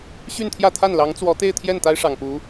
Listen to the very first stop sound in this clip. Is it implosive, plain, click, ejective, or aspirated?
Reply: aspirated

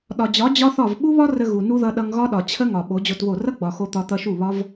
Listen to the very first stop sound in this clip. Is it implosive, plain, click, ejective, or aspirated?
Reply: implosive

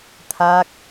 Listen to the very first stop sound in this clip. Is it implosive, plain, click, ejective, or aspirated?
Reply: aspirated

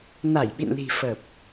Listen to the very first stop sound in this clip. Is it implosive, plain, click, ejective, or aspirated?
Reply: implosive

